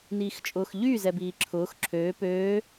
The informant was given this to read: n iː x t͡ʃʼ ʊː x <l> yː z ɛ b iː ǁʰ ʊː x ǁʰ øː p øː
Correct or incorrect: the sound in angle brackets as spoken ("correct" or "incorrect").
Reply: incorrect